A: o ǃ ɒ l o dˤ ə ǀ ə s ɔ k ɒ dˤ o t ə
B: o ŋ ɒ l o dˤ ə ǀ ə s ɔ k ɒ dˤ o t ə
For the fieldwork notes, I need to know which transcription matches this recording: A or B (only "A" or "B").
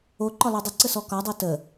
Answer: A